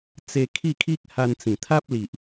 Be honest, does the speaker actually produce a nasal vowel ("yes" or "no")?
yes